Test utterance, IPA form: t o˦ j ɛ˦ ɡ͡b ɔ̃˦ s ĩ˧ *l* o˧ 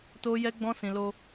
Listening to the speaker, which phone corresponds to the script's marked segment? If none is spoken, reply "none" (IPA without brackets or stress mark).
l